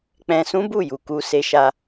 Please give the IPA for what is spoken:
k͡p ɛ̃˧ s ũ˦ b u˦˨ j u˨ k u˧ s e˧ ʃ a˧

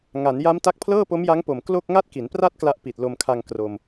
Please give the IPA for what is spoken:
ŋ a˩˦ n j a˦˥ m t a˦˥ k̚ pʰ l ɤː˥˩ p o˦˥ m j a˦˥ ŋ p o˨˩ m k l o˥˩ k̚ ŋ a˥˩ t̚ k i˩˦ n p r a˥˩ t̚ k l a˦˥ ʔ p i˨˩ t̚ l o˧ m kʰ a˧ ŋ k r o˧ m

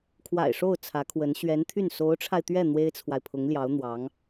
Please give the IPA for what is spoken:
kʰ w a̰˨˩ ɪ̯ ʂ o˥˩ ʊ̯ t͡sʰ ä˧˥ kʰ w ə˧˥ n ɕ ɥ ɛ˧˥ n t̪ʰ y˥˩ n s o˧˥ ʊ̯ ʈ͡ʂʰ a˧ ɪ̯ t̪ ɥ ɛ˥˩ n̪ w e˥ ɪ̯ t͡sʰ w a˨ ɪ̯ pʰ ʊ˧˥ ŋ l j ɑ˧˥ ʊ̯ n̪ w ɑ˧˥ ŋ

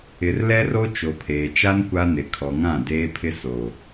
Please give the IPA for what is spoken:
ɪ˨ r l ɛ˦ r o˦ t͡ʃ o˨ pʰ eː˨ t͡ʃ a˦ n kʷ a˦ n ɪ˨ kʰ ɔ˨ ŋ ã˦˨ d eː˦ pʰ ɪ˦ s o˨

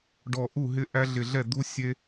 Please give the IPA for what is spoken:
ɖ ɔ˧˩ ʔ u˥˩ ɦ ɪ˦ ʔ æ˦ ɮ ɪ˧˩ ɮ ɛ˥˩ d̪ u˦ sʲ e˦

